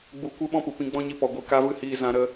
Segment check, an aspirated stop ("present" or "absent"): absent